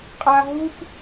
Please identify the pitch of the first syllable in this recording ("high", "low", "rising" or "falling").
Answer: high